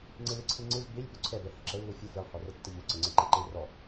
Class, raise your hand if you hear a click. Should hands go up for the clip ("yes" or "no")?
yes